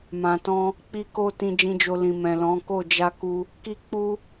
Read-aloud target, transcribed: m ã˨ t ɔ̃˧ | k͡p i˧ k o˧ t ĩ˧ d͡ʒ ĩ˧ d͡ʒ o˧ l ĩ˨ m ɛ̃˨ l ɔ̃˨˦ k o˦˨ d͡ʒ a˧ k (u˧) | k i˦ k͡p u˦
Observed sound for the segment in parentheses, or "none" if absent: u˧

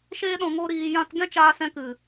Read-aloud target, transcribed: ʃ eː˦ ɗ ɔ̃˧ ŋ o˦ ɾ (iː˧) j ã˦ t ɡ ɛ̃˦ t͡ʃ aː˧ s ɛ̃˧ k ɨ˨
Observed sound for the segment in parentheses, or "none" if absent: iː˧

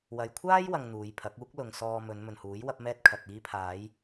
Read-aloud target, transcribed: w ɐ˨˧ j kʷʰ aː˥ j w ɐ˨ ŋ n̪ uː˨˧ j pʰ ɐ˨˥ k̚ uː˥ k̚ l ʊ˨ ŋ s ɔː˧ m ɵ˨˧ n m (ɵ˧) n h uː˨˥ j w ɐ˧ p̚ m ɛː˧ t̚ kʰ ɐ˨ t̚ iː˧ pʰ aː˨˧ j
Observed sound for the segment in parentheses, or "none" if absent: ɵ˨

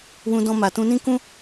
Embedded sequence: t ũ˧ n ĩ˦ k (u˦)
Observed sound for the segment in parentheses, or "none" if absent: ũ˦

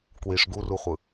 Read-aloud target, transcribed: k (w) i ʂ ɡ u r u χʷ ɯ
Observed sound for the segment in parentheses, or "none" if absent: w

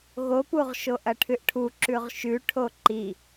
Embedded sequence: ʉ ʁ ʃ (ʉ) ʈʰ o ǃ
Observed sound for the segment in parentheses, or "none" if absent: ʉ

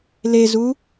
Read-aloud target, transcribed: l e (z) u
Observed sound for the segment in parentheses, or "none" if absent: z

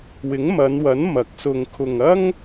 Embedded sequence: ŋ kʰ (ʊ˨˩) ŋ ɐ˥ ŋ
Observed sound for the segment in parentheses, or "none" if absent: ʊ˧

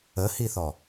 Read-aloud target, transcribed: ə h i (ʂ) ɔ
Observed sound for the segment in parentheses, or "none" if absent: θ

